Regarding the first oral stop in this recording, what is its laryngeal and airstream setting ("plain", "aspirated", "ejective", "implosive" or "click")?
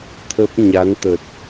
aspirated